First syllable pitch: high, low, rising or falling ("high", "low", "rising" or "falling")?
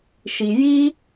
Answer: low